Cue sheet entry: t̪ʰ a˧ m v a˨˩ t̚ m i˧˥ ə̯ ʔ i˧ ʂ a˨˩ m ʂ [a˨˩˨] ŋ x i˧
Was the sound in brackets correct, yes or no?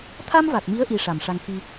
no